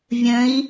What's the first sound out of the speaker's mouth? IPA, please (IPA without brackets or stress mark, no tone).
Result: vʲ